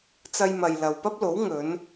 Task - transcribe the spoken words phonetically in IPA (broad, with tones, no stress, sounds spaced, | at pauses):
t͡s ɐ˧ j m ɐ˨ j l ɐ˨ w p ɐ˥ p̚ l o˨˥ w ŋ ɵ˨˧ n